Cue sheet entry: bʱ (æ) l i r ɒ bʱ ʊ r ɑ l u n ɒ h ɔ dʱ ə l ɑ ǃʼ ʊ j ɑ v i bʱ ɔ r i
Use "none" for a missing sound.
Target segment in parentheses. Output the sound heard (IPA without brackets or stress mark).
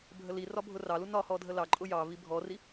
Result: ə